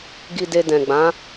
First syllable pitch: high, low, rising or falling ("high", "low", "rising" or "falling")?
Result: low